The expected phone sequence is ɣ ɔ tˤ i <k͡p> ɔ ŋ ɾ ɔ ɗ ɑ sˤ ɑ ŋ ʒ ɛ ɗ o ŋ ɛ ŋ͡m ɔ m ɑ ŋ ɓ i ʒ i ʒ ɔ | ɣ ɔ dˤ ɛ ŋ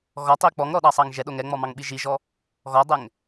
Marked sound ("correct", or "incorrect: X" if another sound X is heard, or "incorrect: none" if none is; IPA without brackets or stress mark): correct